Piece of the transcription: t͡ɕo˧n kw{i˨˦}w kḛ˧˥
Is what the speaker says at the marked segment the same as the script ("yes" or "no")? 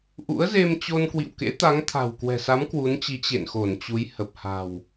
no